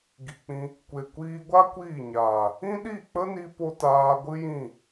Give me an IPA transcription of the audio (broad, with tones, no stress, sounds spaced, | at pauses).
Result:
ɡ i˨ k͡p ĩ˧ | kʷ e˨ kʷ iː˧ ɡʷ a˦ kʷ iː˦˨ ɲ aː˨ | ĩ˦ ɗ i˦˨ k͡p ə˦ n i˧ p o˧ t aː˧ ɡʷ ɨ˦ j ĩ˦˨